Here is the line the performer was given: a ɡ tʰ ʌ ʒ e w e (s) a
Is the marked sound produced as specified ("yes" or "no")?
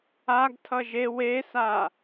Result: yes